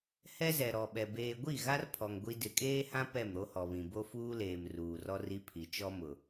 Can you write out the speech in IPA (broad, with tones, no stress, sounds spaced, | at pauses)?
h ɛ˦ z ɛ˨ ɾ ɔ˨ ɓ ɛ˨ b eː˨ ɡʷ i˦˨ ɣ a˦ r pʰ ɔ˨ ŋ ɡʷ i˦ d ɪ˨ kʼ eː˦ h ã˦ p ɛ˦˨ m ɾ o˦ h ɔ˨ β ĩ˨ b o˦ f uː˦ l eː˨ m r uː˨ r ɔ˦ r i˦ pʰ i˨ t͡ʃ ɔ˦ m ʊ˨